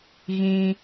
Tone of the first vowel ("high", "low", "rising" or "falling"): high